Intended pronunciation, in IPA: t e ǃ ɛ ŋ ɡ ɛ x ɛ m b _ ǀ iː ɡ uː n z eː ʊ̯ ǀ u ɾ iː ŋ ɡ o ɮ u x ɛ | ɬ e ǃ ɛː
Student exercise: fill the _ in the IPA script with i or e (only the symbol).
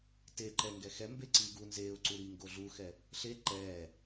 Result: e